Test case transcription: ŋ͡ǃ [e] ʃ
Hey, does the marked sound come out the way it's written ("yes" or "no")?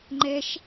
no